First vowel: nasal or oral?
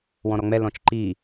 nasal